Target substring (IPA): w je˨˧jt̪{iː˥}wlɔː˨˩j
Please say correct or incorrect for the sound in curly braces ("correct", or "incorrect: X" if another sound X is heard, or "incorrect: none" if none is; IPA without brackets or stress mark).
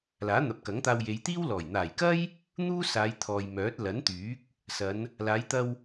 correct